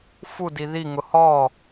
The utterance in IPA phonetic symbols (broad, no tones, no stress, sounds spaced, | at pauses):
f u d i ð i ŋ ʊ h ɔ